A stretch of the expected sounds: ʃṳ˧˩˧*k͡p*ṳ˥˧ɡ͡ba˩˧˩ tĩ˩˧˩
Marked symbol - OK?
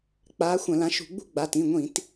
no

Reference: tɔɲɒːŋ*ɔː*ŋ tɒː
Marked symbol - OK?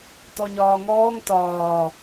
yes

